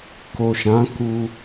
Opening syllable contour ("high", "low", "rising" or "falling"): low